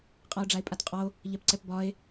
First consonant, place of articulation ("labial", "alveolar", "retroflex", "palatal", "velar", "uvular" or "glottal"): uvular